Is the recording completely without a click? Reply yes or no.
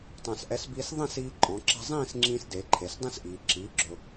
no